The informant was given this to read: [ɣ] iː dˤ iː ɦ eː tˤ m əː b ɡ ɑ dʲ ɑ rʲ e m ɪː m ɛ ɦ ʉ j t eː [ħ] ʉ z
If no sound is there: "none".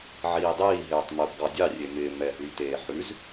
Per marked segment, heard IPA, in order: ʕ, ħ

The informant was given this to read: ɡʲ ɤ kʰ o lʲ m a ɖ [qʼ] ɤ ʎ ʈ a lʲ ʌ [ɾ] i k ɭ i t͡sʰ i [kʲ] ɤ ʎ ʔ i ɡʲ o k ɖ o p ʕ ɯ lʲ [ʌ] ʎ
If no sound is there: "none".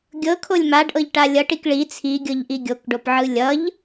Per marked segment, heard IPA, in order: ʔ, ʈ, ɡʲ, ʌ

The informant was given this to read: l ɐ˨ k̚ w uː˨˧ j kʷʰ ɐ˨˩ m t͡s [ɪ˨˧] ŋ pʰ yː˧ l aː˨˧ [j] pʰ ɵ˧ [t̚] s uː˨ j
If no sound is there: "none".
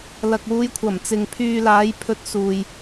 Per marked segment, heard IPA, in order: ɪ˨, j, t̚

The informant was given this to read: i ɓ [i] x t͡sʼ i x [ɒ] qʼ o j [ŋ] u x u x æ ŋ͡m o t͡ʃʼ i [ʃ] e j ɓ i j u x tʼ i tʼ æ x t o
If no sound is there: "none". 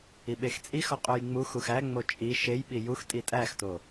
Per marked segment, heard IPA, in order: e, ɒ, ŋ͡m, ʃ

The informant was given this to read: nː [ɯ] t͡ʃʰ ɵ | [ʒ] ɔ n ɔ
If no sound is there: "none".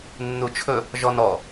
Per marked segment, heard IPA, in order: u, ʒ

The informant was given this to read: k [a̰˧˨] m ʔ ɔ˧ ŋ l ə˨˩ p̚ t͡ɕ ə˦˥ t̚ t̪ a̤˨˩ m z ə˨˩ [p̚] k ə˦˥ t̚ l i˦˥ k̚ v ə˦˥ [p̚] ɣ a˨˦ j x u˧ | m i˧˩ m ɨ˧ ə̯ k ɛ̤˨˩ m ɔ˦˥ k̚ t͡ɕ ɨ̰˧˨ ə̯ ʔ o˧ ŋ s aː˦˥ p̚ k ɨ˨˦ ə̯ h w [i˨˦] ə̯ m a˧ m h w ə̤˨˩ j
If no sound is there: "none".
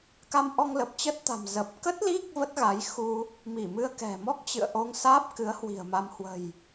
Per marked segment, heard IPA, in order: a˧, p̚, t̚, i̤˨˩

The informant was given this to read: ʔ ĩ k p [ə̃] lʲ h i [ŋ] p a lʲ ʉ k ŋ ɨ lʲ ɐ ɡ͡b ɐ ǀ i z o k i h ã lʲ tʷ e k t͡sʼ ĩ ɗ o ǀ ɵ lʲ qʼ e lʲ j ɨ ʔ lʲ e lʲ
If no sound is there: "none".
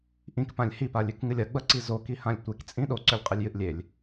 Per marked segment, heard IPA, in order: ã, none

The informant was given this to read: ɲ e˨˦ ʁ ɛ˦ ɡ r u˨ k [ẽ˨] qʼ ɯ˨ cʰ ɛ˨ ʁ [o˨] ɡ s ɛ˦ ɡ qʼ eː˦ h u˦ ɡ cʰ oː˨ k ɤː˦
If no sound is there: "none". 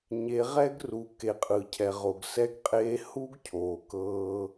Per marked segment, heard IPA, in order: e˨, o˨

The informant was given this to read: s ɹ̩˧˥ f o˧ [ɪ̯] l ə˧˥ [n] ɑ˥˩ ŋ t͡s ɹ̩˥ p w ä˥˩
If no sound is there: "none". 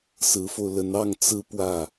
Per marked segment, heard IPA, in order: ʊ̯, n

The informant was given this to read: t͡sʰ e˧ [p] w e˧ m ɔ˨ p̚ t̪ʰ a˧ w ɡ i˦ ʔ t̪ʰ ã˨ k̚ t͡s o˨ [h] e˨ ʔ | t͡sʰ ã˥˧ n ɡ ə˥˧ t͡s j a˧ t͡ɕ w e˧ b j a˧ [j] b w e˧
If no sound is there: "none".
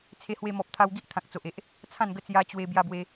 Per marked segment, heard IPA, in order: h, ʔ, none

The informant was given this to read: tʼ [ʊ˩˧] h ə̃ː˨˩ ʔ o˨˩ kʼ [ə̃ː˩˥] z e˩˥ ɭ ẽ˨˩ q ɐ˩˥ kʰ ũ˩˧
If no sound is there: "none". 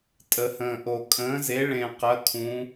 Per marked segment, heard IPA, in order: ə˩˧, ə̃ː˩˥

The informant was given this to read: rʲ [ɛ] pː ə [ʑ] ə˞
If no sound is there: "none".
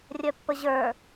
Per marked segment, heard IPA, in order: œ, ʑ

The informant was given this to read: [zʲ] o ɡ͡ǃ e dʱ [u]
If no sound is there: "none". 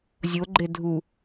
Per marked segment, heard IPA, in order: zʲ, u

